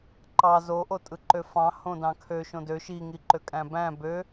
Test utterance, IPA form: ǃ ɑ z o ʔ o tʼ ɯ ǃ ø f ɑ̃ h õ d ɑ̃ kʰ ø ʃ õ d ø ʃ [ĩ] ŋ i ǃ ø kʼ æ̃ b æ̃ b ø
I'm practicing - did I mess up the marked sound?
yes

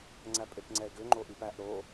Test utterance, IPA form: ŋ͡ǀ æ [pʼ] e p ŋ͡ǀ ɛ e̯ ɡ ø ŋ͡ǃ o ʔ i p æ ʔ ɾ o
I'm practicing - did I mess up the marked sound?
no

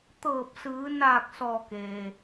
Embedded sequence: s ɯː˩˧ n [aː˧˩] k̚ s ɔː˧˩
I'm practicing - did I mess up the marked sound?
no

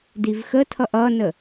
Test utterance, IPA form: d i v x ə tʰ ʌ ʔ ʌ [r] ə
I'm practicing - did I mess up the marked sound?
yes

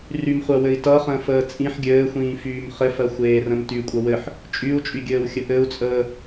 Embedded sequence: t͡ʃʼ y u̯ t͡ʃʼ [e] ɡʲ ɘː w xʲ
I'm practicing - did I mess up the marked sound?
yes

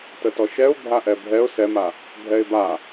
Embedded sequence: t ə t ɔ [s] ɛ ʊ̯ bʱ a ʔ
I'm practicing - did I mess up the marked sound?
yes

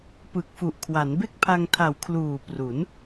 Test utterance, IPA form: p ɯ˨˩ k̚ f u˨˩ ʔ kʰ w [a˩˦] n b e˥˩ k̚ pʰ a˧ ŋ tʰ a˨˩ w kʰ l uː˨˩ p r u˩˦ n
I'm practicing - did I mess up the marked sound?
no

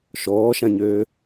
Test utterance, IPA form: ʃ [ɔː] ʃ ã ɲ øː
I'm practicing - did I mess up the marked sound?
no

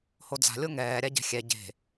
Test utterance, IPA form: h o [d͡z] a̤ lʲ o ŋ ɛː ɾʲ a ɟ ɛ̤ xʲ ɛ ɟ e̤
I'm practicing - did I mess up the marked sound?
no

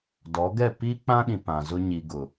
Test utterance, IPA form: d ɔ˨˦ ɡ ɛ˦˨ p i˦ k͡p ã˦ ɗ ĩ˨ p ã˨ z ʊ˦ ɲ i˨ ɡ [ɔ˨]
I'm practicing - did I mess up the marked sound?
yes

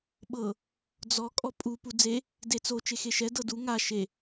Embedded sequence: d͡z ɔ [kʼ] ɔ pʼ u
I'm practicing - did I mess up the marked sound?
no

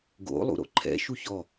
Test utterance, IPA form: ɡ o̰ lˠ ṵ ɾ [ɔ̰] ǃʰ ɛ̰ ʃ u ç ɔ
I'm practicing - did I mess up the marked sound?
yes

